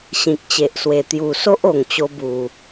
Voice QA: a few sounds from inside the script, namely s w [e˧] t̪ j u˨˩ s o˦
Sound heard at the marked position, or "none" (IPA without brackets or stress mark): e˨˩